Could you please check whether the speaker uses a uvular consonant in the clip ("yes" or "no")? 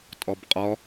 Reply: yes